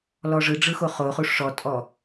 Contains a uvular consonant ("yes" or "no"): yes